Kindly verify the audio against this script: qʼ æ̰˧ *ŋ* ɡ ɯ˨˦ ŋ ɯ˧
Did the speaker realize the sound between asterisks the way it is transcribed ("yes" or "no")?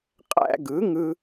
no